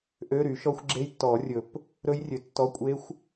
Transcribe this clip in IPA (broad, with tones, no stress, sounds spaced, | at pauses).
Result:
ʔ ø˧˥˧ ɾ y˨˩˦ ʃ ɔ˦˥ xʷ ɡ͡ǁ e˦˥ j tː ɔ˨˩˦ rʲ ɵ˨˩˦ p | ɾ ɵ˦˥ j rʲ ø˨ tː ɔ˧˥˧ kʷʼ e˦˥ xʷ